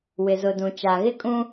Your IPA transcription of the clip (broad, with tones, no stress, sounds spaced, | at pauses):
w ɪ˨ z ʊ˨ d ũ˨ t͡ʃ a˨ ɣ ɪ˦ kʼ ũ˦